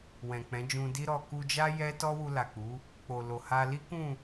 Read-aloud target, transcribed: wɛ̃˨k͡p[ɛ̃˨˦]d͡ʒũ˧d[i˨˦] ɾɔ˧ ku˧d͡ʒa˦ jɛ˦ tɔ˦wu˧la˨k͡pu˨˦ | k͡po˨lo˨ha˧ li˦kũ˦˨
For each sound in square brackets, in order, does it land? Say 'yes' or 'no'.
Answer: yes, no

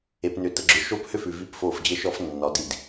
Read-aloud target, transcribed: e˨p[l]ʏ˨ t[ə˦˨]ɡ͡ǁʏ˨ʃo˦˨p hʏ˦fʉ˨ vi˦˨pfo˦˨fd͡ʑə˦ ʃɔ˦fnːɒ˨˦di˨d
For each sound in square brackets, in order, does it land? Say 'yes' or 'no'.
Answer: no, no

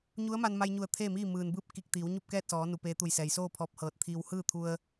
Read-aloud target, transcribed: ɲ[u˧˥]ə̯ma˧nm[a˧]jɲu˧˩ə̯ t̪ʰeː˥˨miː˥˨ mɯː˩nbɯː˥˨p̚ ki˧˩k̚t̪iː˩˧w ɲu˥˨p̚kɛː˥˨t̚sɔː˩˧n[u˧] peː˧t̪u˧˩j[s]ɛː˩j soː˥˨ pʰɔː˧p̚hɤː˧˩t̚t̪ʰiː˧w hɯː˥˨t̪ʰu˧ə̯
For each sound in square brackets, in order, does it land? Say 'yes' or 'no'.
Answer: yes, yes, no, yes

